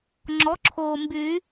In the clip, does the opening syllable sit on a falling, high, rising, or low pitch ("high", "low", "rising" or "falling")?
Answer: rising